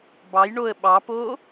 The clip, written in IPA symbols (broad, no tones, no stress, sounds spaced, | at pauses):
b ɑ j ɳ o ə̯ ɓ ɑ p o